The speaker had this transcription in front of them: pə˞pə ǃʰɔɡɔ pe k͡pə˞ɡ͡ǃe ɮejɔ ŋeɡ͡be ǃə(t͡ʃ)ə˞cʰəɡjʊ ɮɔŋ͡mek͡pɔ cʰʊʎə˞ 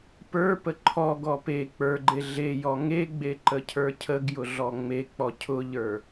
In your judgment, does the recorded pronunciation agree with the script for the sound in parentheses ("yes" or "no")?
no